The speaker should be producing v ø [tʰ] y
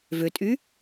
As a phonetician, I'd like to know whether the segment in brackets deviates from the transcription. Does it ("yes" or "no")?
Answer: yes